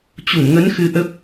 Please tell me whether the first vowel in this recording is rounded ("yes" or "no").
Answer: yes